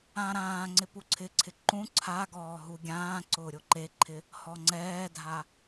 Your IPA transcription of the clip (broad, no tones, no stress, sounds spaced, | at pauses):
ã ɾ ãː ŋ͡ǀ ɪ p u ǀʰ ɪ ǀʰ ɪ ǃ ũ ǀʰ a ɡ ɔː ɦ u ɡʲ ãː ǀ ʊː ɾʲ o ǃ e ǃʰ ɪ | h ɔ ŋ͡ǀ ɛː dʱ a